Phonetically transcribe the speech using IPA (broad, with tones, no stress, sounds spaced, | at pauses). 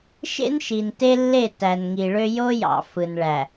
ʃ ḛ˦ n ʃ i˨ n t e˦ lː e˦˨ t æ˨ n ŋ i˨ ɭ ø˦ j o˦ j ɑ̰˨ f ɯ˨ n ɭ æ˨